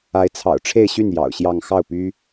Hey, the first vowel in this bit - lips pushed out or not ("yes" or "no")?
no